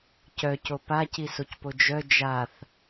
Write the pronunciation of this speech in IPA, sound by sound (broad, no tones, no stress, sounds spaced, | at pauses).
c œ c o p a c i s o c p o d͡ʒ œ d͡ʒ a θ